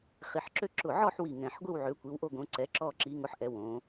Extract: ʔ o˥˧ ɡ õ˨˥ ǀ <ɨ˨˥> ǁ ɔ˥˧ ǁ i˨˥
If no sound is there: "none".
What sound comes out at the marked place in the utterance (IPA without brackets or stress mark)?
ɛ˨˥